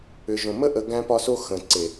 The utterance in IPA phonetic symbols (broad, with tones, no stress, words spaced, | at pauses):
ʏ˨ʒõ˨mə˦ ʔə˧ ɡæ̃˦pɒ˦so˦ xə̃˨ǀe˨